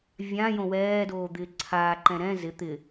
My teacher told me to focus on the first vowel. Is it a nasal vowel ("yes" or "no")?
yes